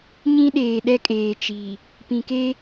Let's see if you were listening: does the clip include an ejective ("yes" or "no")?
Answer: yes